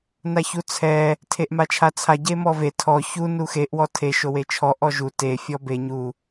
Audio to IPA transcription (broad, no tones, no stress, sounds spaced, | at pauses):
n a ç u t͡sʰ ɛ | tʰ e ʔ m a t͡ʃʰ a t͡sʰ a ɟ e m ɔ v e tʰ ɔ ç u n u x e ʔ w ɔ tʰ e ʃ o w e t͡ʃʰ ɔ ʔ ɔ ʒ u t e fʲ ɔ b e ɲ u